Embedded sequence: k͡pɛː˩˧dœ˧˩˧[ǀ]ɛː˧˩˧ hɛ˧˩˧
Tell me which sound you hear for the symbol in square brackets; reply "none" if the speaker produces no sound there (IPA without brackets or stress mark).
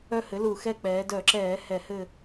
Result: ǁ